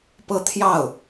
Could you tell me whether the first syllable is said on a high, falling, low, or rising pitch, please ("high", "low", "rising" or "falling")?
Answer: high